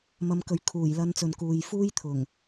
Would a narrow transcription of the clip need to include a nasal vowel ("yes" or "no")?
no